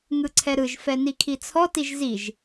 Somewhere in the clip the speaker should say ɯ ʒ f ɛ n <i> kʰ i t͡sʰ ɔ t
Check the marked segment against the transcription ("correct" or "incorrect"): correct